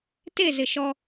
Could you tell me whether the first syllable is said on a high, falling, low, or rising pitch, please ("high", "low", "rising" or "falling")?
falling